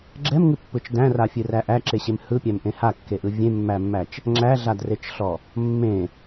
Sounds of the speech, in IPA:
ɡ͡ǁ ɛ m ŋ ɨ pː ɯ t͡ʃ d æ̃ r a fʲ ɨ r æ ʔ æ ǁ e ɕ e m h ɯ pʲ æ m ʔ ẽ h a kː e ʔ ɯ vʲ ẽ mː æ mː æ t͡ʃ | ŋ͡ǁ æ ɮ a d r e t͡ʃ ɬ ɔ | mː ẽ

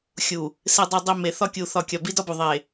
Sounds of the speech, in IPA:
xʲ u˨ | s e˨ dˤ o˨ dˤ i˨ m e˨ θ ɒ˦ kʲ u˨ θ ɒ˨ kʲ ɒ˨ b i˦ d ɒ˦ b u˨ ðˤ e˨

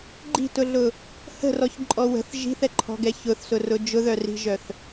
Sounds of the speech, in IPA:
ɡ͡ǃ i̤ t ʊ ɮ ʊ | h ə̤ r ɔ ç ǃʼ ɔ w ə̤ θ ʒ i̤ θ ɛ ǃʰ ɔ̤ ɡ ɛ ç ʊ θ s ʊ r ʊ d͡ʒ ʊ ð œ r i̤ ʒ œ θ

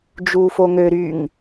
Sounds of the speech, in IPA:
d͡ʒ uː f o ŋ ø ɾ y ŋ

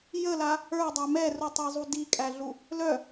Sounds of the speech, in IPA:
j ə l a | ə˞ dˤ œ m ɛ r u tˤ ɛ zˤ u d i kʼ æ ɮ u | l œ

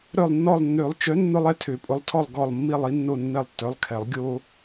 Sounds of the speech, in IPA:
ɾ œ˦˨ lˠ nː ɔ˦˨ lˠ nː ø˨˩˦ lˠ t͡ʃ œ˨˥ nː ʊ˦ lˠ ɛ˦ tʰ ø˨˩˦ pʼ ʊ˨˥ lˠ tʰ ɔ˦˨ lˠ ɡ ɔ˦˨ lˠ mː i˦˨ lˠ i˦ nː o˦˨ nː ɛ˦˨ lˠ tː œ˨˥ lˠ kʰ ɛ˨˩˦ lˠ ɡʲ o˦

